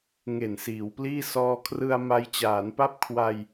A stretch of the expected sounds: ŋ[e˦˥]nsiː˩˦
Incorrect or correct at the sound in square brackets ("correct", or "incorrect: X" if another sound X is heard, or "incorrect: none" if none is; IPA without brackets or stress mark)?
incorrect: e˨˩